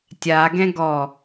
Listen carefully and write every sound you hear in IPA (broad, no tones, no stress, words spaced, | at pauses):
tʲaɡɛ̃ ɡɔ